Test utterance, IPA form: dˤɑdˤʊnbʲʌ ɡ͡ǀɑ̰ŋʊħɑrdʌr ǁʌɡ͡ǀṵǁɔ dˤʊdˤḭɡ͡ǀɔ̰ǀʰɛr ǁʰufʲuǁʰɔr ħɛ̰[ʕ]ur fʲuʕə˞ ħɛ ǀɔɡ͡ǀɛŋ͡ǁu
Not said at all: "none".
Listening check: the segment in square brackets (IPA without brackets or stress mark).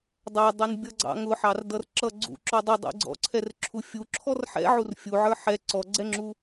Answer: ʕ